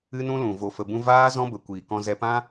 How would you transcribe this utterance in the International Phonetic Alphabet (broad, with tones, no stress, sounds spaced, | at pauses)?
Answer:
ɨ˦ n ũ˦ l ũ˨ v o˧ f ə˧ b ũ˦ v aː˦ z ɔ̃˦ b ə˨ kʷ iː˨ k ɔ̃˧ z ɛ˧ p ã˦